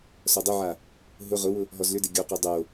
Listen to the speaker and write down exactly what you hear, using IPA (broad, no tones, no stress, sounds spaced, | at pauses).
s ɔ dˤ ʊ ʕ a | ɦ ʊ ʁ ʊ w ʊ | ɦ ɔ z l ʏ d e ɡʲ o q o dˤ o